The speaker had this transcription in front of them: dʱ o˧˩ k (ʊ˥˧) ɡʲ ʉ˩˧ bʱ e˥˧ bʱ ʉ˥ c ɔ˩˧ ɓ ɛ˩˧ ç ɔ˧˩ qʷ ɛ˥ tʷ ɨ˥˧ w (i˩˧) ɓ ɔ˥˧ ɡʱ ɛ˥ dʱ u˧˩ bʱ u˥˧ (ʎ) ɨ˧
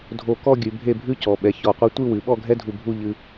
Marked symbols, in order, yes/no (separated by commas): no, no, yes